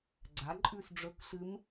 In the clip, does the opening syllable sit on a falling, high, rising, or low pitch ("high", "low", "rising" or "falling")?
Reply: rising